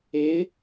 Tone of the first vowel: rising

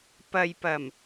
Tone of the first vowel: low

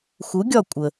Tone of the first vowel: rising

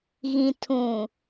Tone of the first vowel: low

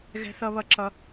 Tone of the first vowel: high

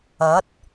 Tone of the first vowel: rising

